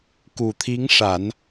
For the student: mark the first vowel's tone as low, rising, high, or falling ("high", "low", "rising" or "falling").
low